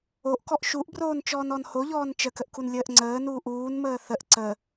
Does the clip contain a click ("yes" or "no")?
yes